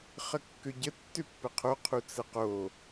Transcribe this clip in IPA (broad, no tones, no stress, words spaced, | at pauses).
χəkːøɟə tːøpːəqʰo qʰut͡səqo